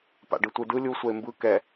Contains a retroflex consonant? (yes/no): yes